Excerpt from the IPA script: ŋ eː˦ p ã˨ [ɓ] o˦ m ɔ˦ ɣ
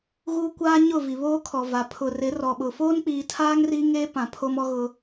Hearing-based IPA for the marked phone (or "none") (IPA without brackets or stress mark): pʰ